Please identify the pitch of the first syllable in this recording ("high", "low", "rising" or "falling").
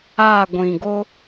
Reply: falling